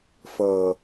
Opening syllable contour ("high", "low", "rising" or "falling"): low